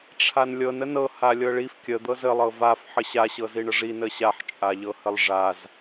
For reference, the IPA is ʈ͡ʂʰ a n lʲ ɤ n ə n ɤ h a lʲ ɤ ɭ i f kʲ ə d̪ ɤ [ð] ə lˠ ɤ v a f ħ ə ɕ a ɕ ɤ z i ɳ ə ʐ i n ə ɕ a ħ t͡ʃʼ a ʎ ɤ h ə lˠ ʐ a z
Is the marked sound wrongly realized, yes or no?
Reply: yes